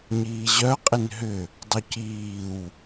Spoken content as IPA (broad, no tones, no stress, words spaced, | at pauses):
ɲiːʑœqʼɪn ɦʏ | dˤuciːw